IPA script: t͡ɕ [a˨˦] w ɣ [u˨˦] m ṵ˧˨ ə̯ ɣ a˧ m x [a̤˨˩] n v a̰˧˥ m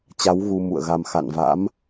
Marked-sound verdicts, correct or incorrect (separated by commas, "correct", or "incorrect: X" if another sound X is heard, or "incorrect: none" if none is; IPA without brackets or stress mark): correct, incorrect: u˧, incorrect: a̰˧˨